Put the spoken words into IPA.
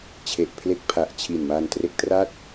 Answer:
t͡ɕʰ e˨˩ ʔ pʰ l e˦˥ k̚ pʰ a˨˩ ʔ t͡ɕʰ i˨˩ n m a˧ n t r e˦˥ k̚ t r a˥˩ t̚

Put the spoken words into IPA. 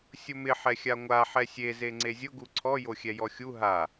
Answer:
sʲ ʊ m ɪ ħ ɛ xʲ a ŋʷ a ħ ɛ sʲ e z e ŋ͡ǀ e zʲ ʊ ɡ u ǀʰ ɔ j o xʲ ɛ j ɔ xʲ u ɦ a

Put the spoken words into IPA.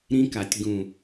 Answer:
ɾ ĩ˧ k a˨ tʲ ɡ ũ˨

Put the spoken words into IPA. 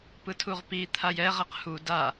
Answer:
p ɯ tʰ u ʁ p i t̪ʰ a j ɛ ʁ ɛ q h u d a

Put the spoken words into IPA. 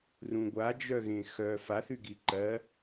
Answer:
r ũ ɡʷ a d͡ʒ œ ɣ ẽ x œ f a θ y ɡ i ǃ ɜ

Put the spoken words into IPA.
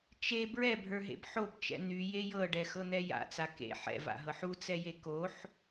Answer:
t͡ʃ e b ɹ ɛ bʱ ə˞ ɦ ḛ b ħ o b t͡ʃ ɛ̰ n̪ y j e j ɤ ɖ ɛ x ɤ n̪ ɛ j a̰ t͡s a k ḛ ħ ɛ̰ v a̰ ɦ ɤ ħ u t͡s ɛ j e k o ħ

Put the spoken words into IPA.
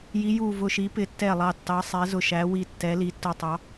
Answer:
j i˨˦ j u˧˩ v ʊ˧˩ ʃ i˨˦ p ɪ˨˦ tː ɛ˧˩ lˠ ɑ˧˩ tː ɑ˨˦ sˤ ɛ˨˦ z ʊ˧˩ ʃ æ˨˦ w i˧˩ tː ɛ˨˦ l i˨˦ tː ʊ˧˩ tˤ ɑ˨˦

